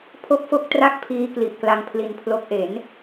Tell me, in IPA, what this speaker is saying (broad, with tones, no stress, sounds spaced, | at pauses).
pʰ o˥˩ k̚ f o˥˩ k̚ t r a˥˩ k̚ pʰ iː˦˥ k l i˨˩ ʔ k l a˧ ŋ pʰ l i˧ n pʰ l o˦˥ k̚ ʔ e˩˦ n